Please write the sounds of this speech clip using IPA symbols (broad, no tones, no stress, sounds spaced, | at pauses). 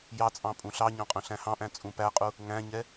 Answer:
j ɑ t͡sʼ ɑ̃ pʼ ũ ɬ ɑ ɲ ɑ̃ qʼ œ̃ ɬ æ̃ h ɑ̃ ʔ æ̃ t͡sʼ ũ p æ qʼ u | ŋ æ̃ ɲ ɛ